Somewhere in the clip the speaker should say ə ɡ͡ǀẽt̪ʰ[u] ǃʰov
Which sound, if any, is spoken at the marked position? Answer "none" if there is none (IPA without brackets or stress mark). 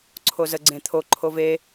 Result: o